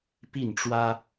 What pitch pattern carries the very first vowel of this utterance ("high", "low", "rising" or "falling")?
falling